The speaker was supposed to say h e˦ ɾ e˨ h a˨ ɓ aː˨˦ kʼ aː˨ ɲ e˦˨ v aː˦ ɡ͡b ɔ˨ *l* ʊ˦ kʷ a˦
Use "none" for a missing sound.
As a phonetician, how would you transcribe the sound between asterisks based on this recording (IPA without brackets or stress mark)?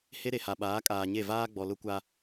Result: l